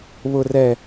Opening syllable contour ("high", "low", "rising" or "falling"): low